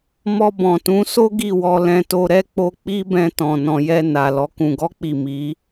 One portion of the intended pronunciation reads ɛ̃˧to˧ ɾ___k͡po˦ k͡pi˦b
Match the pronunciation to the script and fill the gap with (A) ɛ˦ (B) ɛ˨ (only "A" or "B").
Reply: A